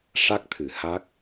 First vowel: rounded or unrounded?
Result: unrounded